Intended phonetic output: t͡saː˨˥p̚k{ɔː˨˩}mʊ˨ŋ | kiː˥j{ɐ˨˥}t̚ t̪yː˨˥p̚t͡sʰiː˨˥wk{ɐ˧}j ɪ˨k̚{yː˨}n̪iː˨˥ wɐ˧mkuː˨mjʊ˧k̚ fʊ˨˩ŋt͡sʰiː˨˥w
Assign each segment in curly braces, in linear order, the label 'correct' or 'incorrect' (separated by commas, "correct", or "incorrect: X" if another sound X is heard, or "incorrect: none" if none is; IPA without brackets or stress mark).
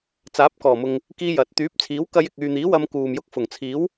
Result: correct, correct, correct, correct